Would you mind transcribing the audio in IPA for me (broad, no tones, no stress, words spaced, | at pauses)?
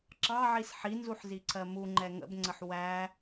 ǁɑʕis ħinzuħziǀʰɜ muŋ͡ǃɛ ŋə̰bŋ͡ǀəħ wæ